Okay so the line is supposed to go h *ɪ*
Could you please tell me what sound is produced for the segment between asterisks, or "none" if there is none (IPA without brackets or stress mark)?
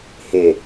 ɪ